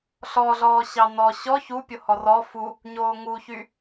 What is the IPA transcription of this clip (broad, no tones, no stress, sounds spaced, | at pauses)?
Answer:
ɬ ɔ ɮ ɔː ɕ ɑ n ɔ ɕ ɔ ç u pʲ o h ɔ r ɔ f u | ɲ oː ŋ u ç y